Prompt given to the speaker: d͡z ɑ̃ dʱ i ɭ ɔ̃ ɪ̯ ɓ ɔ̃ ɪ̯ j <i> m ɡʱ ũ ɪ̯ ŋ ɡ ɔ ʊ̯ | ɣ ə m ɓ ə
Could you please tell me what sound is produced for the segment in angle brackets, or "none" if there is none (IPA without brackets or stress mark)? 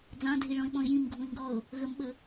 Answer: ĩ